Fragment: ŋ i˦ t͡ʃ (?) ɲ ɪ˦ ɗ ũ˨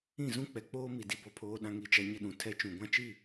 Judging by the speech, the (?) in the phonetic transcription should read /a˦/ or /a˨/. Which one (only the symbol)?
a˦